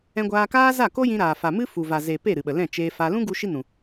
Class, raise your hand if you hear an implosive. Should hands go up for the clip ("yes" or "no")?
yes